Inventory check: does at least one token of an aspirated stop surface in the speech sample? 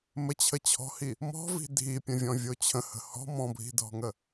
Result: yes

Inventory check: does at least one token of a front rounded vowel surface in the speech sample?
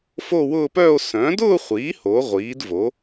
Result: yes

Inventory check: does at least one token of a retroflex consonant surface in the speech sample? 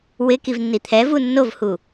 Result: no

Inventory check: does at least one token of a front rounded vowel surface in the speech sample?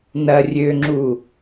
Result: yes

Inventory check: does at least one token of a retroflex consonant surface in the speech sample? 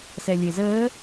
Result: no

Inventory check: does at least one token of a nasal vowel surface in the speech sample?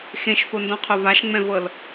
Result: yes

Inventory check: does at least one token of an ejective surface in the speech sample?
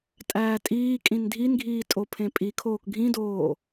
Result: yes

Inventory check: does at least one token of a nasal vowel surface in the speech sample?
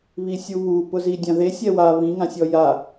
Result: yes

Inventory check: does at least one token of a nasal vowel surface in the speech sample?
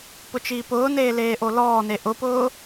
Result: no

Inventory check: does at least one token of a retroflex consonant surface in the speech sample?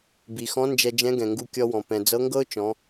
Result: no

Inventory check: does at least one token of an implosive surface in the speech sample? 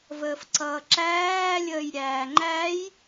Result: no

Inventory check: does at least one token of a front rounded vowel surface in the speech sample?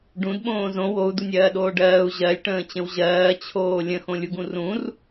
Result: no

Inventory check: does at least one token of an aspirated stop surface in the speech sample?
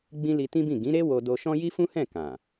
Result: no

